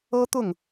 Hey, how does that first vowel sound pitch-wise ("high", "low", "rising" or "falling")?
high